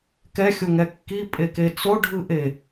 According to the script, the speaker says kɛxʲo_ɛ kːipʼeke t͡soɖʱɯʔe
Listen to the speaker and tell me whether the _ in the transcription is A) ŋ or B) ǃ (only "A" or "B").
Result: A